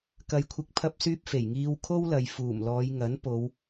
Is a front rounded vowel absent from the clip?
no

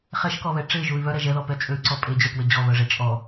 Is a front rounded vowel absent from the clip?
no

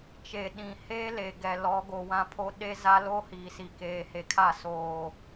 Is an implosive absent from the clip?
no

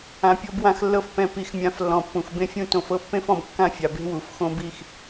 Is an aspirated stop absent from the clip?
yes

